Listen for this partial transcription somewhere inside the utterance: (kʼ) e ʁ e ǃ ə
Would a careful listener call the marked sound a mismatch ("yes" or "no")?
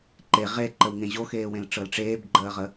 yes